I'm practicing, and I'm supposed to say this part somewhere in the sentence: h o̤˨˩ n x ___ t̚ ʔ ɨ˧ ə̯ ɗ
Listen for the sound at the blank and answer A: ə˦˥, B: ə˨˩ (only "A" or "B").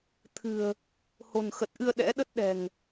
B